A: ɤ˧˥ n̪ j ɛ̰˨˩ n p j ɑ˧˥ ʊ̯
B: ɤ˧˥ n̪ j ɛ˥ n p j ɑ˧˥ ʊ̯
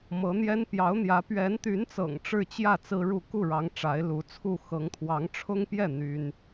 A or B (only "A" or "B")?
B